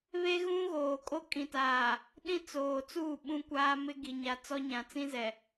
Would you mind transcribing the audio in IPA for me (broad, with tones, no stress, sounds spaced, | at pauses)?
β e˦ ɣ ũ˦ ɣ oː˨ kʼ o˦ kʼ ĩ˨ t aː˨ | ɗ ĩ˦ t͡s oː˨ t͡s uː˦˨ ɓ ũ˦ kʷ aː˦ m ɪ˦ ɡ i˨ ɲ a˨ t͡s ɔ˦ ɲ ã˨ t͡s ĩ˦ z ɛ˨